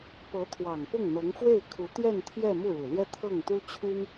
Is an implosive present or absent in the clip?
absent